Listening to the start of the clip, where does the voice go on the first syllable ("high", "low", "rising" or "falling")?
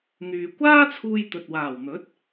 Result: low